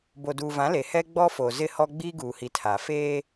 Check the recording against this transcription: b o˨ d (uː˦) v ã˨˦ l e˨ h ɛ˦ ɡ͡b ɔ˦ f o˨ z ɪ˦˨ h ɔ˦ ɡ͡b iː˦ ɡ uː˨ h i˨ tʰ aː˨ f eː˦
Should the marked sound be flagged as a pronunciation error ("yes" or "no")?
yes